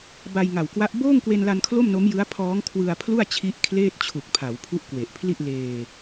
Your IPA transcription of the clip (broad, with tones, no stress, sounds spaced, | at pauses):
b a˧ j ŋ a˨˩ w k w a˦˥ ʔ b oː˥˩ ŋ k w e˧ n l a˧ n kʰ l o˥˩ m n o˦˥ m j ɯ˦˥ a̯ pʰ ɔː˦˥ ŋ kʰ w ɯ˧ a̯ pʰ l u˥˩ a̯ t͡ɕʰ i˦˥ ʔ kʰ l eː˥˩ t̚ t͡ɕʰ u˨˩ k̚ pʰ a˩˦ w pʰ u˦˥ ʔ k w e˨˩ ʔ pʰ l i˥˩ ʔ l eː˧